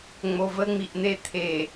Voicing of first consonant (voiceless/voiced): voiced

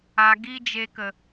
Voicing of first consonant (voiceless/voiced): voiced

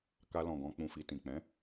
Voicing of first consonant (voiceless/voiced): voiceless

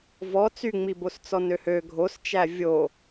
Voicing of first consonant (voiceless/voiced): voiced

